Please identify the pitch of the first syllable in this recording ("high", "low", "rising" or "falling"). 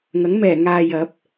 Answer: rising